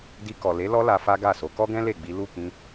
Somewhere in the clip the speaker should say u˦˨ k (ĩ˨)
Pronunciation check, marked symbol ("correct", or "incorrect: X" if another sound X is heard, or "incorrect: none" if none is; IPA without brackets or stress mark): incorrect: ĩ˧